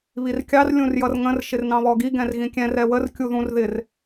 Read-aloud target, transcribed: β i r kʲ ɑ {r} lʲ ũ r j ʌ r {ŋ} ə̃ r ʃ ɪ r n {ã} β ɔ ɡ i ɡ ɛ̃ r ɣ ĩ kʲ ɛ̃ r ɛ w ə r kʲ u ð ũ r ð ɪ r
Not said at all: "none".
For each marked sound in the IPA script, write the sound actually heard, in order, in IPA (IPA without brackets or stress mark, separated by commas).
r, ŋ, ɑ̃